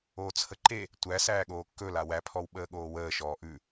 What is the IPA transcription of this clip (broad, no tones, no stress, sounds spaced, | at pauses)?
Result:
oː t͡sʰ ə ǃ e | tʷ æ s æː ɠ oː kː ɵ l a w æ pʰ ɔ w ɓ əː ɠ oː w əː ʃ ɔː ʔ ʉ